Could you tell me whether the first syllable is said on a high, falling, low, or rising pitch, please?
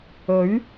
rising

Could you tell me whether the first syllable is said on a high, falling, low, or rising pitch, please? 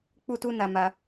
high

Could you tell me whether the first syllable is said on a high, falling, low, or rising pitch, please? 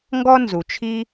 high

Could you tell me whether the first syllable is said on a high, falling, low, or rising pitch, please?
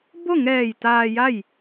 falling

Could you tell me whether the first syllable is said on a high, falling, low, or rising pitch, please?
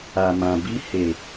low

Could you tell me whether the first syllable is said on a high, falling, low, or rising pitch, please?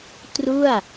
falling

